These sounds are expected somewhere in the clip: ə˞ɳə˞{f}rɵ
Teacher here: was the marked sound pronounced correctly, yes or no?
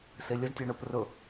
no